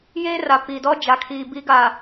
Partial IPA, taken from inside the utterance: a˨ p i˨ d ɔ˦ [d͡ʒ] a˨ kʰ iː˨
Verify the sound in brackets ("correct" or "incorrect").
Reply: correct